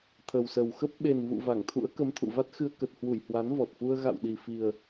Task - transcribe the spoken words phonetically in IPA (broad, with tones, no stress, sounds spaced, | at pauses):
t̪ʰ ə˨˩ w s ə˨˩ w x ə˦˥ p̚ ɓ e˨˩ n v ṵ˧˨ v a˧˩ ŋ t̪ʰ ṵ˧˥ ə̯ k ə˨˦ m t̪ʰ ṵ˧˨ v a˦˥ t̚ x ɨ˧ ə̯ k ə˨˩ t̚ h w u˧˩ j h w a˨˦ n v ɔ˨˩ t̚ f u˧ ə̯ ɣ a̰˧˨ w ɗ i˨˩ f i˨˩ ə̯